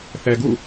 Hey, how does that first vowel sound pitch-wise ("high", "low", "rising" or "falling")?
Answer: low